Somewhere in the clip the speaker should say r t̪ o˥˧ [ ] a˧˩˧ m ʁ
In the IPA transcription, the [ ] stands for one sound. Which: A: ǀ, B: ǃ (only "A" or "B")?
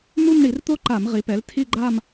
B